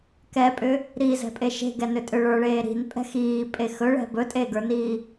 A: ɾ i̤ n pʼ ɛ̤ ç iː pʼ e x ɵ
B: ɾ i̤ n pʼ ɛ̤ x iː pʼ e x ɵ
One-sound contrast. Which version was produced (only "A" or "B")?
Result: B